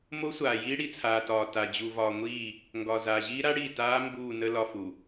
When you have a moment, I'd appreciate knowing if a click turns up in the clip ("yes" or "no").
no